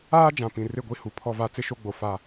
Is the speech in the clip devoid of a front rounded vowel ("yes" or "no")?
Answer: yes